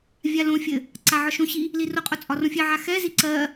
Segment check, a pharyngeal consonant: present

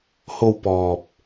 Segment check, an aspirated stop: absent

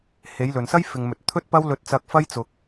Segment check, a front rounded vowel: absent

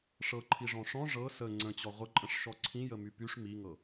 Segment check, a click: present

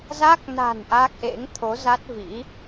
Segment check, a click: absent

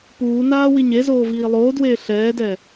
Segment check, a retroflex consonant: absent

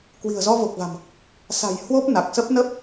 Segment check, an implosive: absent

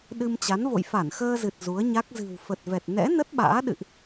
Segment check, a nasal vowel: absent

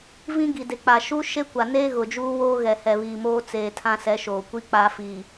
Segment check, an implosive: absent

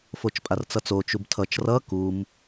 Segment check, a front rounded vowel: absent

